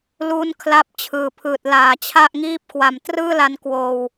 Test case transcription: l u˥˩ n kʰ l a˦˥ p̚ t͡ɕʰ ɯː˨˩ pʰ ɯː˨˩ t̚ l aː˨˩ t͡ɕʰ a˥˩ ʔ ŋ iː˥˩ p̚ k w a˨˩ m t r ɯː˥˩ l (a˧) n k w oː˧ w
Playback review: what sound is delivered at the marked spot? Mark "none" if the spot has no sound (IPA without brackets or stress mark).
a˧